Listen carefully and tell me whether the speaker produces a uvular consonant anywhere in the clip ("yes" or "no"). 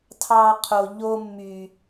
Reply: yes